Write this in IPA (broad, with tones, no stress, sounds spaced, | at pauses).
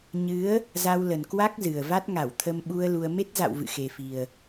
ɲ ɨ˨˦ ə̯ | z a˧ w l ə˨˩ n k w a˦˥ k̚ z ɨ˨˩ ə̯ v a˦˥ t̚ ŋ a˧˩ w t̪ʰ ə˧ m ɓ u˧ ə̯ l u˧ ə̯ m e˦˥ t̚ z a̰˧˨ w v ɨ̰˧˨ x e˨˩ f i˨˩ ə̯